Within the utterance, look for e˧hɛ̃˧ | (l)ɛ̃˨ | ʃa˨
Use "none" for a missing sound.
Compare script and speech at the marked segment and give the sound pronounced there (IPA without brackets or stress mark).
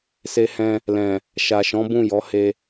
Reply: l